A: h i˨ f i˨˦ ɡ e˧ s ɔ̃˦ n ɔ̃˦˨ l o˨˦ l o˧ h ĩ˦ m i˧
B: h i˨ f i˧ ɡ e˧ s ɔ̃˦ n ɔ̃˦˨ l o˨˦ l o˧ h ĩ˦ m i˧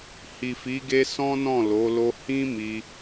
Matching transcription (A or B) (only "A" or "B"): A